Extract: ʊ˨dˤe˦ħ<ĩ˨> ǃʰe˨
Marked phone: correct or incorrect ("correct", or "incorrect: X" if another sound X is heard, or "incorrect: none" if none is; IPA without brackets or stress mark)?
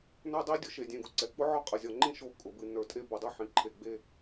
correct